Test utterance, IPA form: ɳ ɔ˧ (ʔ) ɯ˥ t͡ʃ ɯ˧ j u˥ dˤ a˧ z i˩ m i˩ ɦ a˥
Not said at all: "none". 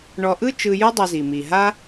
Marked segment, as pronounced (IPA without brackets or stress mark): ʔ